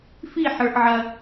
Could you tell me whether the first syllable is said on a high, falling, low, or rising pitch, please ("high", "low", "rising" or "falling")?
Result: falling